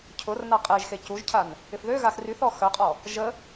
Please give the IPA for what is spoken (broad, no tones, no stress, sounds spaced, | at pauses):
cʰ ʊ r n a qʼ e ʒ x e c u ʒ cʰ a n | ɪ f ð ø ɣ a x r y θ ɔ x œ qʼ ɔ | ʒ ə